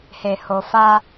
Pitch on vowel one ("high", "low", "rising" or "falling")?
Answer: low